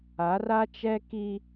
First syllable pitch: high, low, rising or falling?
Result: rising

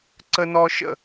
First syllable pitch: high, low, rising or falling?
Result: high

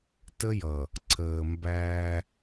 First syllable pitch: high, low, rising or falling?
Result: high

